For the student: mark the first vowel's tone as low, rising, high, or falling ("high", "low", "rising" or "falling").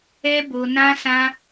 high